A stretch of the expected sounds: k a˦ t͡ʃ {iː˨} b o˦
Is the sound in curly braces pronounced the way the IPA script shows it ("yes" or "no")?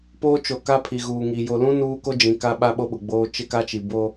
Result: no